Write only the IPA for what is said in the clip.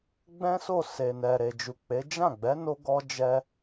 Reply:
ɡ͡b ɛ̃˦ s o˦˨ s e˨ n ɛ˨ ɾ e˨ d͡ʒ u˨ k͡p e˨˦ d͡ʒ ã˦˨ ɡ͡b ɛ˨˦ n o˧ ɡ ɔ˧ d͡ʒ ɛ˧

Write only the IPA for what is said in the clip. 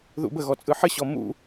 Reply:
ð ṵ b ə ɣ ɔ t͡sʼ ɯ ħ ə ɕ ɔ m ṵ

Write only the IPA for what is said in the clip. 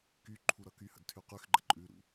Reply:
k y ǃʰ u ɾ ʌ k y h ə̰ d tʰ y q y x ɡ͡ǃ ə̰ ǃʼ ʉ ɾ ṵ

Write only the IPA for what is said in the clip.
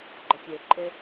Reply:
ɡ͡ǃ ɔ tʲ e ǃʼ ɪ

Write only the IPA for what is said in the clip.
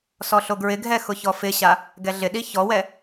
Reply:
s ɔ ɬ o ɡ ɹ ɪ ɡʱ ɛ x ʊ ç ɔ f ɪ ɕ a | ɡ ɛ ɮ ɪ ɗ i ç ɔ w ɛ

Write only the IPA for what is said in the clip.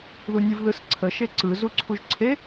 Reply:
ð u nʲ ɯ v ð ɯ s ǀʰ ə ʃ e ǀ ɯ z u ǀʰ u ʒ ǀʰ e

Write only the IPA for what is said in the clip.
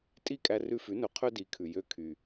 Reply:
tʼ i˥˩ kʼ æ˧ r ʉ˧ f ʉ˩˥ n ɵ˩˥ qʰ ø˥ d i˩˥ kʰ ʉ˩ j ø˧ kʰ y˩

